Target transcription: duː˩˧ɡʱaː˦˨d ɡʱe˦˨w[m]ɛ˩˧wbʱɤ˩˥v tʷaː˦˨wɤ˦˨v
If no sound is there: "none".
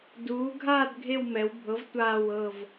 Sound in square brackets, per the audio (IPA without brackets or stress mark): m